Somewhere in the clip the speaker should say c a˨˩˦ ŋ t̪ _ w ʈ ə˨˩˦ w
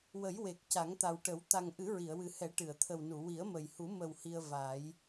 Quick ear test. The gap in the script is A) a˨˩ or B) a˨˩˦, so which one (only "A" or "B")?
A